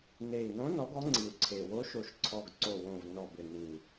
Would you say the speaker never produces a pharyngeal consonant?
yes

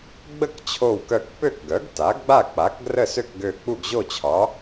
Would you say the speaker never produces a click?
yes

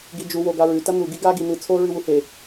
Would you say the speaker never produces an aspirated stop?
no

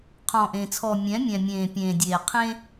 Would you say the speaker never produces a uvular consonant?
no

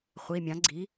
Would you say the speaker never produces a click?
no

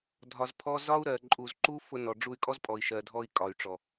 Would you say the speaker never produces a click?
no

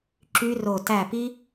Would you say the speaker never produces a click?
no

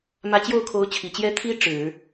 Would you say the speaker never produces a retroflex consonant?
no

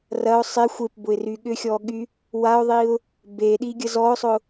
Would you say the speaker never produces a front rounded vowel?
no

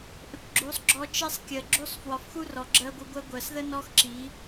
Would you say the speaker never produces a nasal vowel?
yes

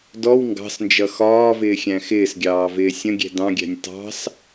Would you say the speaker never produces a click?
yes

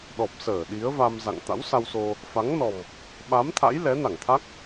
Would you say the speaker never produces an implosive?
no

